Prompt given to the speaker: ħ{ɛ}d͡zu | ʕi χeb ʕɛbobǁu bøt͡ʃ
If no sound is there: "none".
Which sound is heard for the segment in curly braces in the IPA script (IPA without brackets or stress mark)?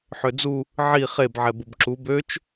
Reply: ø